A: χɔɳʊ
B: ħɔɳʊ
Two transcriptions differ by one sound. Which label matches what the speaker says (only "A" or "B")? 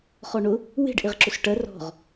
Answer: A